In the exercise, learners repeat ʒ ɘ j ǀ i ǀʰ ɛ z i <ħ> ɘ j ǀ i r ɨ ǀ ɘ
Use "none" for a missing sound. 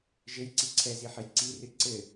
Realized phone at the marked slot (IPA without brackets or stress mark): ħ